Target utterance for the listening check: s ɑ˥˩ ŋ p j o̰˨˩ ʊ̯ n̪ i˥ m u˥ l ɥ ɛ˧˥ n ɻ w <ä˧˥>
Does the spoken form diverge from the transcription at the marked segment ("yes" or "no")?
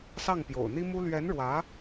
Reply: no